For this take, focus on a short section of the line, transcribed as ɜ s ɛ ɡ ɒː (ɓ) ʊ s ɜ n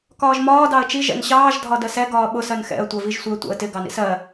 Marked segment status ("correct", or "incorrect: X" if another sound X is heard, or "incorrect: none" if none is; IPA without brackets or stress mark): correct